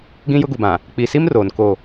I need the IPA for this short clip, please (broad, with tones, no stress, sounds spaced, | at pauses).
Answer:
ɡ ĩ˦ j ʊ˦ ɡ u˨ b ã˨ | k͡p i˨ s i˦ m r oː˨ n k o˦˨